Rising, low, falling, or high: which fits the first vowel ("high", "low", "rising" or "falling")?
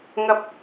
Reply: low